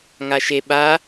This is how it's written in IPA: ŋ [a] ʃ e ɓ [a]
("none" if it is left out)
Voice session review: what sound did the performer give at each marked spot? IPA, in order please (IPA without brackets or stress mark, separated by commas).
a, a